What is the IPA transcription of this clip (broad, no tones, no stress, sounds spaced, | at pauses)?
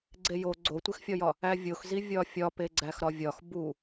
ɡ͡ǀ e j o ɡ͡ǀ o tʷ e x fʲ ɒ j ɒ | æ vʲ o x z i vʲ ɒ fʲ ɒ p e ɡ͡ǀ æ x ɾ ɒ vʲ ɒ x b u